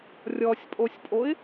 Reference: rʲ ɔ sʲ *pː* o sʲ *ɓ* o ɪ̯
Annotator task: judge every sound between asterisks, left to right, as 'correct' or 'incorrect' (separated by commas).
incorrect, incorrect